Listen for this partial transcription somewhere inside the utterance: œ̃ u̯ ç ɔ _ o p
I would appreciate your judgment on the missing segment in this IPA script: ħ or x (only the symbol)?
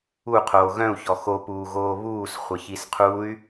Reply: x